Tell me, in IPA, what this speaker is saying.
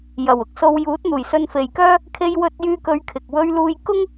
j ɐ˨˩ w ʊ˨ k̚ s o˧ w j uː˨˥ t̚ n̪ uː˨˩ j s ɵ˧ n f e˨ j k œː˥ | kʰ e˧ j w ɵ˧ t̚ j yː˧ k ɵ˨˧ ɥ kʰ ɪ˨ k̚ w ɵ˧ ɥ l uː˧ j k ʊ˥ ŋ

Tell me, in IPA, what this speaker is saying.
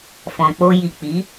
f ɔ̃˨ k͡p o˧ j i˨ k͡p i˨˦

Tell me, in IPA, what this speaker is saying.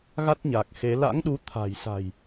ɣ a˦˥ t̚ ɲ a˨˩ k̚ x e˨˦ l a̰˧˥ ŋ ɗ u˨˦ t̪ʰ a̤˨˩ j s a̤˨˩ j

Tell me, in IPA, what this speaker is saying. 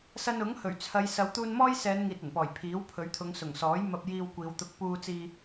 s ɐ˧ n ʊ˨˥ ŋ h ɵ˨˩ ɥ t͡sʰ ɐ˨˧ j s ɐ˨˧ w t̪ uː˧ n m ɔː˥ j s ɛː˨˧ n ŋ iː˨ t̚ ɐ˨˩ n p ɔː˨˩ j pʰ iː˨˥ w pʰ ɵ˨˥ ɥ t̪ʰ ʊ˨˧ ŋ s ʊ˨˩ ŋ s ɔː˨˥ j m ɐ˧ p̚ j iː˧ w kʷ iː˨˧ w t̪ ʊ˧ k̚ p uː˧ t͡s iː˧

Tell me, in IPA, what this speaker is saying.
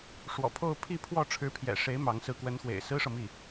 ʂ w ɔ̰˨˩ pʰ o˥˧ ʊ̯ pʰ i˥˧ pʰ w ɔ˥˩ ʈ͡ʂʰ ɻ̩˧˥ pʰ j ɛ̰˨˩ ʂ e˧˥ ɪ̯ m ɑ˧˥ ŋ s ɹ̩˧˥ k w ə˧˥ n x w ḛ˨˩ ɪ̯ s ɹ̩˥ ʂ ɤ˨ m i˥˩

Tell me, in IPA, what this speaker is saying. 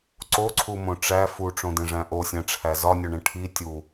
ǀ o ǀʰ u m õ ʈ͡ʂ æ f u ʈ͡ʂ õ d ẽ ʐ æ̃ ʔ o sʲ æ̃ ʈ͡ʂʰ æ z ɒ nʲ o ɳ ẽ ʈʰ i tʲ u

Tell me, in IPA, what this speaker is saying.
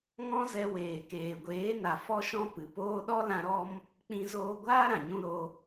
ŋ ɔ̃˦ z ɛ˧ w eː˨ k eː˨ ɡʷ eː˨˦ n a˨ f ɔ˦ ʃ ɔ̃˦ p ɨ˨ p oː˦ ɗ ɔ˦ l ã˧ ɾ ɔ˦ m | k͡p ĩ˦ z oː˦ ɡʷ aː˦ ɾ ã˨ ɲ ũ˧ ɾ o˧

